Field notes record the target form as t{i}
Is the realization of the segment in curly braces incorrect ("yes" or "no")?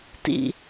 yes